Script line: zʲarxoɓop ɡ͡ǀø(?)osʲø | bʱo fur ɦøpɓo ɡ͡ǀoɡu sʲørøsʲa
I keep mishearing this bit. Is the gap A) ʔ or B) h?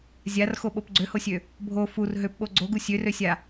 B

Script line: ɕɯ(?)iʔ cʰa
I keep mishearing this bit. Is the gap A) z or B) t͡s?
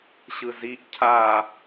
A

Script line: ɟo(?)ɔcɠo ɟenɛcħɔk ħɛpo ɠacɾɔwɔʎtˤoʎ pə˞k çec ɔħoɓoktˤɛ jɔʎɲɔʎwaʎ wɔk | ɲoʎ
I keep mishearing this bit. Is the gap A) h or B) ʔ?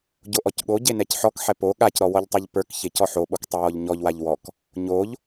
B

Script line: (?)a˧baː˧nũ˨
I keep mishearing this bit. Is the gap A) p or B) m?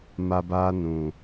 B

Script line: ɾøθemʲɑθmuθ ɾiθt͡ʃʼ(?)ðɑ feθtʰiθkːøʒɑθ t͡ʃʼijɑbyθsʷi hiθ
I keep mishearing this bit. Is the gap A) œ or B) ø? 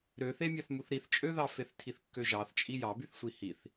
B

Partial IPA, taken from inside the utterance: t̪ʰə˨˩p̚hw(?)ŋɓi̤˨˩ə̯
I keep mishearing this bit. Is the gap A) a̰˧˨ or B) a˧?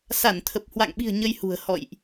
A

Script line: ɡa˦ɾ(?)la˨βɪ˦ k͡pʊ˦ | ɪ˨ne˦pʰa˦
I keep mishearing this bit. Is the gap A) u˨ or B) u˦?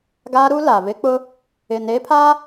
B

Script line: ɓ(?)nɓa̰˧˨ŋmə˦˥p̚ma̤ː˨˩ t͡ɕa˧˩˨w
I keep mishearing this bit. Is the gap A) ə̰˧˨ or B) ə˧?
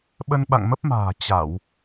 B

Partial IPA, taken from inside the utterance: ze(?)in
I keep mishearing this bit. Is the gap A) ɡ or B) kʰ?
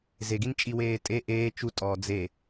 A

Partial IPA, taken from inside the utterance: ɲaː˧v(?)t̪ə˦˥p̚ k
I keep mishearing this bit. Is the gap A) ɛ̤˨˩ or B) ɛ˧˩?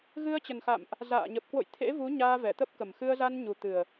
B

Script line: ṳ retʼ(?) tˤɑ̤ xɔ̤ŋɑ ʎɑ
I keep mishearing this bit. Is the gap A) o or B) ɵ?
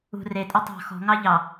B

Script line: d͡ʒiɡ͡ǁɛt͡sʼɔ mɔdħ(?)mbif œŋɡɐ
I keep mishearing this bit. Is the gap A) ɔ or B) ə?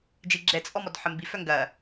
B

